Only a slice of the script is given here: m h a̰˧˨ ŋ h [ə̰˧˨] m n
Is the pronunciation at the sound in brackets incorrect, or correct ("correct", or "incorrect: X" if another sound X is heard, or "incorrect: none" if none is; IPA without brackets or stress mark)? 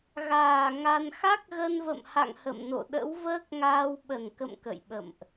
correct